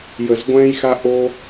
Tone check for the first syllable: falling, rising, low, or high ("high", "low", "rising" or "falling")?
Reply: low